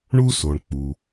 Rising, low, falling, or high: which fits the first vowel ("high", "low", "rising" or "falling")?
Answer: high